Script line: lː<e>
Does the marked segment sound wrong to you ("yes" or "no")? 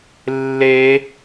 no